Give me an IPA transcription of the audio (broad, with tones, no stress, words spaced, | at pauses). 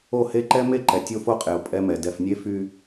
o˦˨he˦ǃɛ˦ me˦˨ǃɛ˨ tʲo˦fo˦qʼe˨o̯ pʼɛ˦mɛ˨ dɛ˨f nʲe˦fy˦